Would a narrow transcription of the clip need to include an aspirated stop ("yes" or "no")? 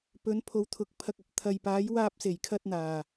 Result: yes